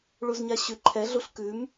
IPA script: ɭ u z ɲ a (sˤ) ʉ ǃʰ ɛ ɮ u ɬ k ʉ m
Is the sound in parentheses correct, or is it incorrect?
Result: incorrect